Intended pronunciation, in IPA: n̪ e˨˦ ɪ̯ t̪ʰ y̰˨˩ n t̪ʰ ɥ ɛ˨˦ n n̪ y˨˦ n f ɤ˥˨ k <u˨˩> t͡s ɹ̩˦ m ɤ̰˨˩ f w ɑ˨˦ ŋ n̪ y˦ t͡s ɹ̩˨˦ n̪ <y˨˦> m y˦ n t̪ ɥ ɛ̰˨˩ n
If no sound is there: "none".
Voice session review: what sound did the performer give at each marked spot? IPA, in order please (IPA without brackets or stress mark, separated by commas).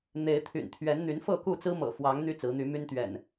u˥˨, y˨˦